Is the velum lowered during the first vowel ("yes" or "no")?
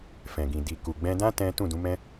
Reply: yes